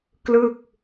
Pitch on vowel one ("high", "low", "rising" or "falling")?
falling